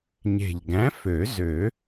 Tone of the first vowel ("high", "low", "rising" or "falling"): low